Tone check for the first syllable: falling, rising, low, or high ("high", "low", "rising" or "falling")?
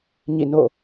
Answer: falling